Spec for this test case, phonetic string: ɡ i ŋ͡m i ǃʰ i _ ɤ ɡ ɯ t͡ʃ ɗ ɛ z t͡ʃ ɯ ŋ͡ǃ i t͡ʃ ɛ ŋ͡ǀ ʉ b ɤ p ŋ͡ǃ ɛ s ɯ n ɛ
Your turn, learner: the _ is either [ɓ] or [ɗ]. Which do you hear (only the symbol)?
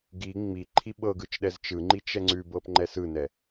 ɓ